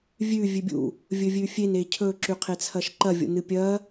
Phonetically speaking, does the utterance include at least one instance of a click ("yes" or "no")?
yes